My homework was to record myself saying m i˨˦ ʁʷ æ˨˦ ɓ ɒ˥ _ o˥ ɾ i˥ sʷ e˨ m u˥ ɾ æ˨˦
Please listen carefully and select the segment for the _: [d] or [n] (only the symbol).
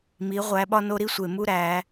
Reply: n